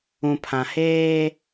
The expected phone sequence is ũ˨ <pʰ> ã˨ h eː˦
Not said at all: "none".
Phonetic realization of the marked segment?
pʰ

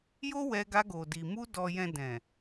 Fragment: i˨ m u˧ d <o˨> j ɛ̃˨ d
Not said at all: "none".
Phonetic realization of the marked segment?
ɔ˨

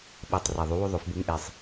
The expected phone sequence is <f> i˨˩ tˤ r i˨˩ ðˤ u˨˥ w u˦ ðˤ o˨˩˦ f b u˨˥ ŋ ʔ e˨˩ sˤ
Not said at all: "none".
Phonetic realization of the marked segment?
ɓ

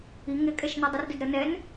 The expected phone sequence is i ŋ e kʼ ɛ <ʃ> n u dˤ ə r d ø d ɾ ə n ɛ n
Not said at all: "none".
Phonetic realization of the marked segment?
ʃ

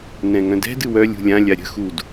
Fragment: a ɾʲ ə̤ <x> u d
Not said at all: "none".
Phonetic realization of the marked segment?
x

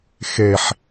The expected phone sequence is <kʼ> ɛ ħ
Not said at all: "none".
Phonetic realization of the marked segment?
x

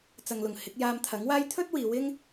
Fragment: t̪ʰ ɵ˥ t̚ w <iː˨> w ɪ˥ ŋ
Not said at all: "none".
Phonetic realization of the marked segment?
iː˨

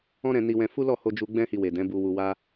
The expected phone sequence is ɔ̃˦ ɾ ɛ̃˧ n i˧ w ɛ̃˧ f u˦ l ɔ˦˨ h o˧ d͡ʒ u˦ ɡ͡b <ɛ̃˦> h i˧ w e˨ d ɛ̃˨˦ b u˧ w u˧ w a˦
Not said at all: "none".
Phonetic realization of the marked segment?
ɛ̃˦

